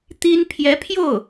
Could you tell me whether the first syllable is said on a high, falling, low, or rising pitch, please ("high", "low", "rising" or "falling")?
high